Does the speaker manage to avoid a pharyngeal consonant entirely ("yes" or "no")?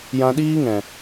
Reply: yes